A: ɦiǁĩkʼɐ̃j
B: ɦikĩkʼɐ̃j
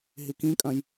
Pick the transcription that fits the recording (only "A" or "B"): B